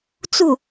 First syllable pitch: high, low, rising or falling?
falling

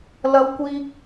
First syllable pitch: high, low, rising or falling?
high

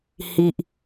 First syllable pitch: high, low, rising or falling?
low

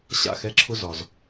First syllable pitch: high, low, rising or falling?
falling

